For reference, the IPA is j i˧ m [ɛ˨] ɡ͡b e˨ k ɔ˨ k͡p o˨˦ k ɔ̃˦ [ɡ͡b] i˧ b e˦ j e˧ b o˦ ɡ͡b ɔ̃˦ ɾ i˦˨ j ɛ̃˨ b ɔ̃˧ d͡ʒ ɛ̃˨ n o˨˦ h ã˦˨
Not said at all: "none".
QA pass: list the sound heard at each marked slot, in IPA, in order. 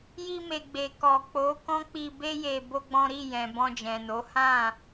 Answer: e˨, k͡p

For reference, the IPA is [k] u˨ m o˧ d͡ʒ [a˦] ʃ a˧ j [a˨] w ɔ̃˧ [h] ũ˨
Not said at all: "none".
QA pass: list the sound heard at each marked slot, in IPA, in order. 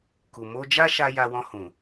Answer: k, a˦, a˧, h

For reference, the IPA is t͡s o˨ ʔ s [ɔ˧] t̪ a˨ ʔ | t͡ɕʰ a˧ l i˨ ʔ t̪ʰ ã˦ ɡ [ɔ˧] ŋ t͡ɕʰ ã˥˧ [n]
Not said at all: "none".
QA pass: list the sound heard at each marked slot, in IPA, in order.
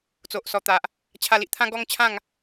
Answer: ɔ˨˩, ɔ˦, ŋ

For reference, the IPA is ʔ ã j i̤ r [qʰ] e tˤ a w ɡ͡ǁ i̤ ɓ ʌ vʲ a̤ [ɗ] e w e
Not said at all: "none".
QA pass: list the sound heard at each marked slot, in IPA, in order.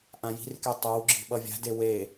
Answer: k, d

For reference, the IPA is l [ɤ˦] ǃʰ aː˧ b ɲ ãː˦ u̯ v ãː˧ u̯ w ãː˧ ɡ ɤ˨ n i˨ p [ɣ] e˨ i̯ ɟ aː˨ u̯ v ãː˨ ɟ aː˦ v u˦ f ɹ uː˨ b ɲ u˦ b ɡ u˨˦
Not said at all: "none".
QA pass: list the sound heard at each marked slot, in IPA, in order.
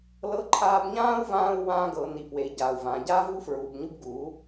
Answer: ɤ˧, w

